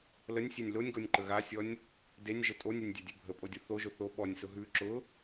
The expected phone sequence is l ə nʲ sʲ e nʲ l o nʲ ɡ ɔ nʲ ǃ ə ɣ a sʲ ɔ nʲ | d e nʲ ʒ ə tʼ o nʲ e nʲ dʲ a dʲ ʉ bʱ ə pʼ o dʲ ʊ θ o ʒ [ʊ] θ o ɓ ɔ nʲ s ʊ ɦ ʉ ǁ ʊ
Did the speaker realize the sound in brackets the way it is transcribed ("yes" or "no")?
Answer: yes